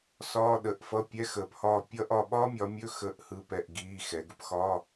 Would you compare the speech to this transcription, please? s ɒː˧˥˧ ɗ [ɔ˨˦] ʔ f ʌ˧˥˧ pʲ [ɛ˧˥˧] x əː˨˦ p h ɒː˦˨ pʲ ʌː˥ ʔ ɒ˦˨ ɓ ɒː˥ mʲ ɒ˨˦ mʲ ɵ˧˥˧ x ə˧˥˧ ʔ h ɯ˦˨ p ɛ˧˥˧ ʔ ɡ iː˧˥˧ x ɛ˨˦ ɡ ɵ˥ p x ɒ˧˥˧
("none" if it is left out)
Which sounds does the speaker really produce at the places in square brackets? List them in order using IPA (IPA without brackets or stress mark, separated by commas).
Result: ə˨˦, ɛ˧˥˧